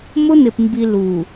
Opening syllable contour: high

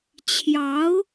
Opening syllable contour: rising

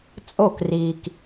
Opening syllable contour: falling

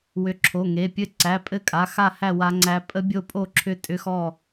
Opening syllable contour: rising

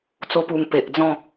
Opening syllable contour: high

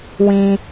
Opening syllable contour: low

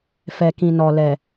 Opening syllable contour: low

